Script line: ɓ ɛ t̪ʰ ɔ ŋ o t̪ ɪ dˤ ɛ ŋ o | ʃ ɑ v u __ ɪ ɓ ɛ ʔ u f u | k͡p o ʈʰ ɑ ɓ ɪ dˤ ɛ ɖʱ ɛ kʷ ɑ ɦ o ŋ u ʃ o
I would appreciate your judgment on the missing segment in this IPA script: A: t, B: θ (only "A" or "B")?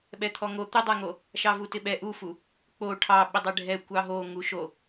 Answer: A